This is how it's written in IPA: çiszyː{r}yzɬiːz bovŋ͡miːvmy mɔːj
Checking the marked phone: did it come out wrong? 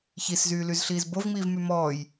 yes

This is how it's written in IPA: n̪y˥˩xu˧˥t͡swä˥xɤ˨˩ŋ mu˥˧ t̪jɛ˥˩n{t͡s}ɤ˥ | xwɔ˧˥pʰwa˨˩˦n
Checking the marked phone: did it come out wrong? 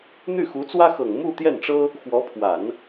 yes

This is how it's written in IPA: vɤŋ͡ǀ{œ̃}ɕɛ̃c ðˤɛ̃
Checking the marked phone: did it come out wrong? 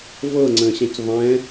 yes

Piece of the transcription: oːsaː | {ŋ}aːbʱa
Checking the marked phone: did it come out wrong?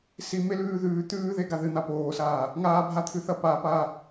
no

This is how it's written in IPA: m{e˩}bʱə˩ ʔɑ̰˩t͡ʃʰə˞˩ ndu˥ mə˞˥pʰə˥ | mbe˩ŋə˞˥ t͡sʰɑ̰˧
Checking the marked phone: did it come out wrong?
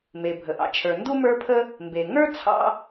no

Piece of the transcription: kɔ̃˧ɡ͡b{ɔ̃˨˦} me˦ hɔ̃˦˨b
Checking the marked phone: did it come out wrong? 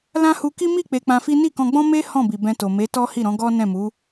yes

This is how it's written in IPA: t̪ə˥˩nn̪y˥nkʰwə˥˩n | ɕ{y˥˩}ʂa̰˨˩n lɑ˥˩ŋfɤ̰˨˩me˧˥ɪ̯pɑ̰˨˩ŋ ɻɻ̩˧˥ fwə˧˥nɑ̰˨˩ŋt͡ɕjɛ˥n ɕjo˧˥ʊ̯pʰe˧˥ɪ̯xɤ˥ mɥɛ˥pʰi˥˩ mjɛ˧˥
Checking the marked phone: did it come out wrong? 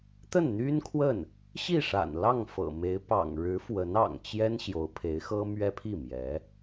yes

